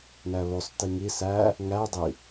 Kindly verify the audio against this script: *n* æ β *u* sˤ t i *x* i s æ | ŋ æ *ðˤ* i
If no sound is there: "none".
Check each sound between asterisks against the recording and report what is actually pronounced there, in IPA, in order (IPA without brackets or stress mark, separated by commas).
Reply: n, o, ŋ, dˤ